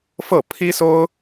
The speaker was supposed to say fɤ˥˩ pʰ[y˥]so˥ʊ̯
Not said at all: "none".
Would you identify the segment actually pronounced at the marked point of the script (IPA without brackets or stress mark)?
i˥